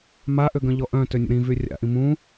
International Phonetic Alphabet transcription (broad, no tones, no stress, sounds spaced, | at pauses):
m a ʔ ø ɡ œ̃ ʎ ɔ ʔ œ̃ t ø nʲ ə̰ ɾ ĩ v y rʲ a̰ ʔ ĩ m ũ